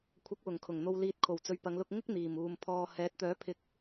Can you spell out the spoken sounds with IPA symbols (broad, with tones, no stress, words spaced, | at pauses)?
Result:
kʷʰɐ˨˥k̚wʊ˨˩ŋkʰʊ˨˩ŋ n̪o˨wliː˨t̚ kʰo˨˩wt͡sɵ˨ɥpɐ˨˧ŋlʊ˧k̚ ŋɪ˥k̚n̪iː˨˩muː˨m pʰɔː˨ hɛː˨˥t̚ t̪œː˨˥pʰɪ˨˥k̚